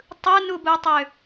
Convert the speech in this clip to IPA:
tˤɯnubutˤø

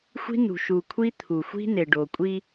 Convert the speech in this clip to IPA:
xʷi̤˦nṳ˨ ʃu˨kʷʰi˦ t̪ʰu˨xʷi̤˦ ne˨ɖo˨kʷʼi˦

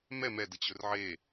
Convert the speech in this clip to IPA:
mɛ mɛ dət͡ɕɵrʕe

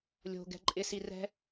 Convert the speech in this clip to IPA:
lʲo̤ɡɛ̤ ǃʼɪsi rɛ̤

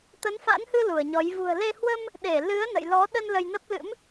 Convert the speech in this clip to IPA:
t̪ə˨˦nfa̰˧˥nhɨ˧ lu˧˩ə̯ɲɔ˨˦j vṳ˨˩ə̯le˧ hwə˧m | ɗe˧˩lɨ˨˦ə̯ nə̰˧˨jlɔ˨˦ɗə˧n lə˧jnə˦˥p̚lɨ̰˧˥m

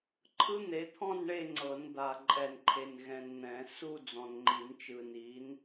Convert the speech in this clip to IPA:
ǃʰɯ˦˥n̪e˨˦t̪ʰɔ̃˥˧n ɳe˥˧ŋ͡ǀɤ˨˩˦n d̪a˨ ǃʼɛ˨nǃʰe˨n ɣɛ̃˨nn̪ɛ̃˨˩˦ su˥˧ d͡zɔ̃˨nŋ͡ǃi˨˩˦nt͡ʃɯ˨ni˨˦n

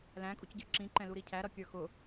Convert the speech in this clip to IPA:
læ̃kʼucɟə˞ ǁĩǃɛ̃ luɾicʰæɾʌ kʲə˞xʊ

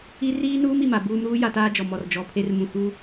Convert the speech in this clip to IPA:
i˦ riː˦nuː˦m i˨ma˨ buː˦m ɾuː˦ja˨taː˦ d͡ʒɔ˨ mɔ˨r d͡ʒɔ˨˦pʰe˦r mũ˨hu˦

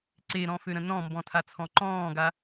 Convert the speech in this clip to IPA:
ǀeɾɔ̃føɾə̃ nɔ̃mbɔ̃tʰat͡sʰɔ̃ ǃɔ̃ːɡa

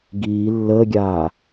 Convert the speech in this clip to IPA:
ɡiː lːəːɡʲaː

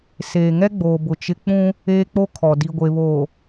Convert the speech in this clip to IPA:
seː˨ŋɛ˦ɡ͡boː˨bʊ˨ t͡ʃɪ˦ k͡pũ˦ | eː˦k͡po˦ kʰɔ˨di˨ ɡʷe˨βoː˨

